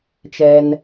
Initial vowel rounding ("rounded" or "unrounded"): unrounded